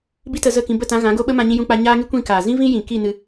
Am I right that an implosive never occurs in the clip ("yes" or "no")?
no